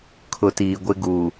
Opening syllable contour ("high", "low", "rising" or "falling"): low